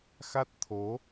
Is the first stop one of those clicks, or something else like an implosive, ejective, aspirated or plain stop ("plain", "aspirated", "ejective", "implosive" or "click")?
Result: plain